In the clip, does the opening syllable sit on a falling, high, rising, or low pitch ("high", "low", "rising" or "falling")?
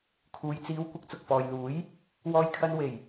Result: low